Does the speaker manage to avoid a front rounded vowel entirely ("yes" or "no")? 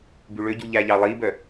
no